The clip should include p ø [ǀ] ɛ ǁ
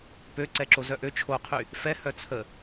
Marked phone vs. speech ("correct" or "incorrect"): correct